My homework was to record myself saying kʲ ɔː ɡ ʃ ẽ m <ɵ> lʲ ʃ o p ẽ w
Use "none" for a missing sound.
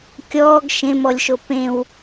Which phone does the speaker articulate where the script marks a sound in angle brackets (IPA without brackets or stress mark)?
ɔ